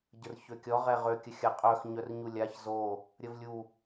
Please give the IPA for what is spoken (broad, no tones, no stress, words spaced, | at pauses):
ɟərçøkʲɔ ʁɛʁø kʲəxʲaqʼœx ɲœrɲulʲaç zo | ɾʲəvlʲu